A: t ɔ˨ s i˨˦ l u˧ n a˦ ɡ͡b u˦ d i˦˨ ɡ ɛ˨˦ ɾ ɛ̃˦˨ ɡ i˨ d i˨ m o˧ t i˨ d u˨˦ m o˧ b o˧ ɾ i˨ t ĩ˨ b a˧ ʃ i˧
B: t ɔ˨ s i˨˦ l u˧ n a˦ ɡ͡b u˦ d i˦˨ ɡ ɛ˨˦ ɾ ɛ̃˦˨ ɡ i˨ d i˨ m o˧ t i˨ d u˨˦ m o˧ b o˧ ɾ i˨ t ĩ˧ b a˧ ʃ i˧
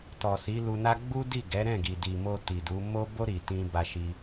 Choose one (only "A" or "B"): B